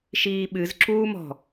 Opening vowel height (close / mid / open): close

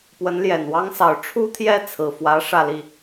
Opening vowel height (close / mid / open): mid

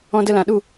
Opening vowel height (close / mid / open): mid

